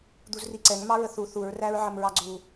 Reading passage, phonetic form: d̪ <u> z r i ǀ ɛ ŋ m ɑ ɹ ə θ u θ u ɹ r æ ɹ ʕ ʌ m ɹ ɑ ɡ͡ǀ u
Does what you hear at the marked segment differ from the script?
no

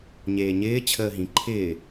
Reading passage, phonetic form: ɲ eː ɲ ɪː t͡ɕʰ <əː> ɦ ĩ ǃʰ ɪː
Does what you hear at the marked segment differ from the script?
no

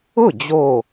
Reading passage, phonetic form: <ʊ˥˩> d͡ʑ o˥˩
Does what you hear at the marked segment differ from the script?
no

